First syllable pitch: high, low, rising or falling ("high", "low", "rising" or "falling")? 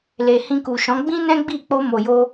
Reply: low